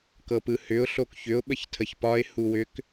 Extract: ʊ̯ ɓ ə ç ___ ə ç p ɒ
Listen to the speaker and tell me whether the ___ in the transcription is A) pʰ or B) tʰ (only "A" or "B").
B